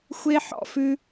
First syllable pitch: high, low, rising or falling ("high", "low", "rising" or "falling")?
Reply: high